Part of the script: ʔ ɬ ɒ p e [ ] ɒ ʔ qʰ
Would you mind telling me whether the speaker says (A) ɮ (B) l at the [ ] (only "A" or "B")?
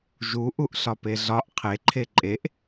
A